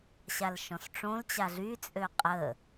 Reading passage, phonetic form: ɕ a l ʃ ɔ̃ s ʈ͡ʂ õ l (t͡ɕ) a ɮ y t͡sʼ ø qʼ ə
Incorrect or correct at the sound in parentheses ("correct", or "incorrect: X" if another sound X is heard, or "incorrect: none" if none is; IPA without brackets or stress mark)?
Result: correct